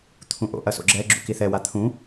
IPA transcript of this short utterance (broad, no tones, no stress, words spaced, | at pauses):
t̪ʰũʔo̰ ʔɐso̰ɡ͡ǁɛ ɡ͡ǁṵkiθɛ wat̪ʰũ